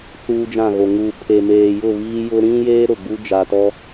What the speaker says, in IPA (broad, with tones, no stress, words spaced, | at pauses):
t͡suː˦d͡ʒã˦˨ɣo˨ ŋu˨pʰe˨ meː˨jʊ˦˨ βiː˦jʊ˦ ɾĩ˦jeː˦ ɾʊ˨ɡ͡bu˦ d͡ʒa˨tɔ˦